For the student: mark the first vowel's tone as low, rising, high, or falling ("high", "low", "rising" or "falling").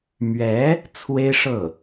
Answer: rising